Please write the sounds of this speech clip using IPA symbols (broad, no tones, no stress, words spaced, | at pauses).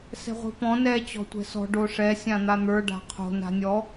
sɛ̤ʁʷi̤pɔ̃ nɛ t͡ɕɔ̤tʷɛ̤sɔ̤ ɖoʂɛ sʲãn̪an̪ə˞ ɖa̤qʰo̤ na̤nʲɔ